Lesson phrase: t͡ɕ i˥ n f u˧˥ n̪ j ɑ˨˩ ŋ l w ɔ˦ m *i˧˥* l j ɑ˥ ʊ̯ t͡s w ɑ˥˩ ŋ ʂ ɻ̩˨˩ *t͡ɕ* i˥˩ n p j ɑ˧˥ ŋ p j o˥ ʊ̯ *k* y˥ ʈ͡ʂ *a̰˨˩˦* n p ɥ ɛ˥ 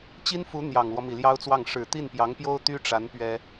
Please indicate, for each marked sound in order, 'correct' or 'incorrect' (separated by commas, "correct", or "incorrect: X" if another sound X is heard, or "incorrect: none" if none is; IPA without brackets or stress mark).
incorrect: i˨˩, incorrect: t̪, incorrect: t̪, incorrect: a˧˥